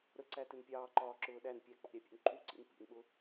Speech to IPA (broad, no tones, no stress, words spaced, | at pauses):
ɾəǀætɪn pʲɑːǃɒːǁʊː ɗæn pʲæk͡pɑ̰ɾʲæpʲṵn ǃuǀḭn pḭnɓʊ